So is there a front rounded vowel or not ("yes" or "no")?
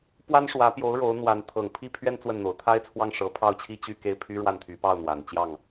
yes